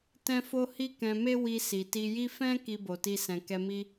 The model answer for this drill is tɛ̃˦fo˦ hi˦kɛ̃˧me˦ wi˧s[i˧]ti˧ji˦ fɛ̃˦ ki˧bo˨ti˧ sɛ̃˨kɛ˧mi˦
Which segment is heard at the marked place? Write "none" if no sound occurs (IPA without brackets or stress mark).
i˨